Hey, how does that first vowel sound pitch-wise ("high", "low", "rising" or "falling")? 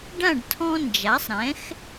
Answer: falling